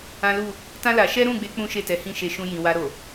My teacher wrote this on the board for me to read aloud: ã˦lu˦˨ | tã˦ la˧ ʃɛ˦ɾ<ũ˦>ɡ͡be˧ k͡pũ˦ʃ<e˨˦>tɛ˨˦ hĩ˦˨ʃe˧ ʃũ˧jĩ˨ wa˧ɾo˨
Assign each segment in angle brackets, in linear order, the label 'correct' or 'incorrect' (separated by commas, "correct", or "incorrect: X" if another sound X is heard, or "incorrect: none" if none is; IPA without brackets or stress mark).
incorrect: ũ˦˨, incorrect: e˦˨